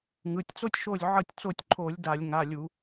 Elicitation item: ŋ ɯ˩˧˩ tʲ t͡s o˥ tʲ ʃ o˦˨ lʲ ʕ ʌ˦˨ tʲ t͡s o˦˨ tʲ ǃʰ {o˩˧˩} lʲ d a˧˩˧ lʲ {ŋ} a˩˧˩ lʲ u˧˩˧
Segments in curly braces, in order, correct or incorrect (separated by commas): incorrect, correct